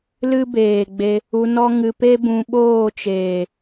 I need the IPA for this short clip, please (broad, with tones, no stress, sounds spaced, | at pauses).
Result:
l ɨ˦ b eː˨ ɡ͡b e˧ | u˧ n ɔ˦ ŋ ɨ˧ p e˦ b ũ˧ ɓ oː˦˨ t͡ʃ eː˨